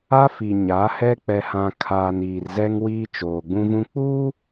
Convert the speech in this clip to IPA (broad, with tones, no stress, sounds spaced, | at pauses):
a˦ f i˨ ɲ aː˨˦ h ɛ˦ k͡p ɛ˨ h ã˨ kʰ aː˨ n iː˨ r z ɛ˦ ŋ w iː˦ t͡ʃ oː˨ ɡ͡b ũ˦ v ũ˦ k͡p uː˦